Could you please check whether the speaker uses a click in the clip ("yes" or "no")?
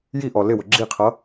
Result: yes